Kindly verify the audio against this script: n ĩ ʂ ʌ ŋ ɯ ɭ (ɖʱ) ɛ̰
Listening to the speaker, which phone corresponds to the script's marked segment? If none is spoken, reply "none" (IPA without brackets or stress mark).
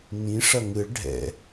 ɖʱ